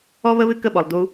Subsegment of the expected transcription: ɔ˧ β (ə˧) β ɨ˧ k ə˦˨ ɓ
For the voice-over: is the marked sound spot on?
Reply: yes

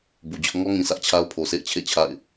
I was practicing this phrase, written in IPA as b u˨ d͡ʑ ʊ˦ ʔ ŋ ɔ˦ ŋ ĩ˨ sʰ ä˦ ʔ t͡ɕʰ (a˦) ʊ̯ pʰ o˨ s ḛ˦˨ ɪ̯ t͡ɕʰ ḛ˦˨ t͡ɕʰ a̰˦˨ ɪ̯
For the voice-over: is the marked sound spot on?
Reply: yes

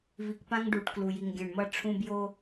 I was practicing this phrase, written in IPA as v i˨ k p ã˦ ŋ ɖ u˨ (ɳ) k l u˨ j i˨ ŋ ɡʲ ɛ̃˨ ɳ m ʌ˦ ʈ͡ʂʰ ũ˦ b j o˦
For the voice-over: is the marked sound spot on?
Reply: no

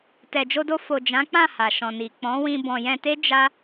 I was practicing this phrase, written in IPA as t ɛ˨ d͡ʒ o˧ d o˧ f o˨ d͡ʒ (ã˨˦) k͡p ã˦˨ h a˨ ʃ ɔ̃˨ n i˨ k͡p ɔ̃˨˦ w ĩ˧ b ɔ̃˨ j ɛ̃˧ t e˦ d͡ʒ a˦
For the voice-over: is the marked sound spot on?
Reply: yes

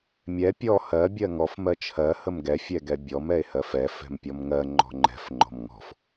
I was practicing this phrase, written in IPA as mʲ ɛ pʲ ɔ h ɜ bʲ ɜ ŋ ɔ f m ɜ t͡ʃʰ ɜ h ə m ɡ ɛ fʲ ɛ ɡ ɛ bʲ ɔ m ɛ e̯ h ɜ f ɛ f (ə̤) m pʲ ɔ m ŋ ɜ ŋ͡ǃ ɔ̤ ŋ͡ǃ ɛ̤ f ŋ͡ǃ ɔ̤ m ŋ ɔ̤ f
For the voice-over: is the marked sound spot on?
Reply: no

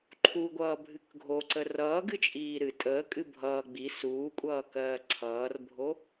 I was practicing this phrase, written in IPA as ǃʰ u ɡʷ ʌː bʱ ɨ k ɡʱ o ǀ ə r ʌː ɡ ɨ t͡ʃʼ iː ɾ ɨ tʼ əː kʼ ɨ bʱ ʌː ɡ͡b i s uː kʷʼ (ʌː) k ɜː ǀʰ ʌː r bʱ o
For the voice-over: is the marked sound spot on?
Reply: yes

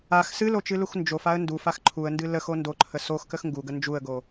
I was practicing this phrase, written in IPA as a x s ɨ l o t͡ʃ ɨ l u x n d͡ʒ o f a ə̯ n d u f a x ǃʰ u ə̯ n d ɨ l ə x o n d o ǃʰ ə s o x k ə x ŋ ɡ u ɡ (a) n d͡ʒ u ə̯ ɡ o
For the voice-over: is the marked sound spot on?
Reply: no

